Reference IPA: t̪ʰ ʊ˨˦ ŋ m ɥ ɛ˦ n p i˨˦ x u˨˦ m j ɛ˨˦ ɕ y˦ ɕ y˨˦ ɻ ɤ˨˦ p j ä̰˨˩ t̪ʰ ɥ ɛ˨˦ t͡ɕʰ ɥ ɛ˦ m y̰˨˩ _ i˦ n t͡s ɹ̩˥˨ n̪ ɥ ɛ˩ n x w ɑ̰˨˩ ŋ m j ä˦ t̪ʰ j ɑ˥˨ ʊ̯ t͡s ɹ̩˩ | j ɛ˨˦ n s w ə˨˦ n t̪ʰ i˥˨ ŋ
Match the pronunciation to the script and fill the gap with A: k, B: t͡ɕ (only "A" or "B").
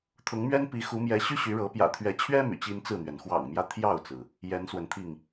B